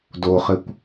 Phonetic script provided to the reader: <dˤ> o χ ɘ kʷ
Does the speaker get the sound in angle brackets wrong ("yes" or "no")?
yes